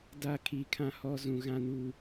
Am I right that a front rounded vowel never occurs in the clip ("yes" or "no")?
yes